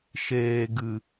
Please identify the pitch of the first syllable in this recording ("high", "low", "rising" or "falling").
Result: low